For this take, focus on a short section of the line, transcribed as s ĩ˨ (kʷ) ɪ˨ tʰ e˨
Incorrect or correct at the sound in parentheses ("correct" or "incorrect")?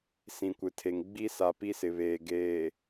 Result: correct